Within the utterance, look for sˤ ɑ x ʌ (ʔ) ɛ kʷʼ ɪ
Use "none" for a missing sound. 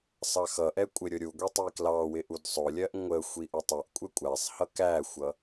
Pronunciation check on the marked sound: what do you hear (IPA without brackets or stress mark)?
ʔ